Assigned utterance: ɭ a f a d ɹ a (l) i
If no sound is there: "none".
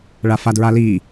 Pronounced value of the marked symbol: l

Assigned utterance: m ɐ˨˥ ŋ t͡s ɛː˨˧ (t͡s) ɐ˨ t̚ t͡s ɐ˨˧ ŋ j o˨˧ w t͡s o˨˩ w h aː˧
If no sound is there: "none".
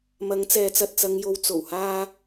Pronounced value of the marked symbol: t͡s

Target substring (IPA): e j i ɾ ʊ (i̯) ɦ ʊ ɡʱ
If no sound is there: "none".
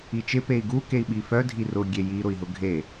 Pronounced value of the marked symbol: i̯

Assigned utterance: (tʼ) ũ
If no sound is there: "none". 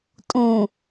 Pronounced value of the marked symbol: tʼ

